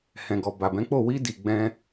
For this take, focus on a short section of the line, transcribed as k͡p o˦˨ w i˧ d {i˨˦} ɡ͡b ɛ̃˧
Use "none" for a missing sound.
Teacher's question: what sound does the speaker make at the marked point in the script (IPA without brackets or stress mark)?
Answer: i˨